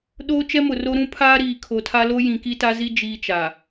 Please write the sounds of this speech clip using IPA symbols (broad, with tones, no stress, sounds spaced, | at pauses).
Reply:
ɗ oː˦ t͡ʃ ɛ˦ m ʊ˨ r o˦ ɾ ũ˦ pʰ aː˦ ɾ iː˨ kʰ o˨ tʰ a˦ l o˦ j ĩ˨ k i˦ t a˦ z i˦ d͡ʒ iː˦ t͡ʃ a˨